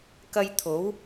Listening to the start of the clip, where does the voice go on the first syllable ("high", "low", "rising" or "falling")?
high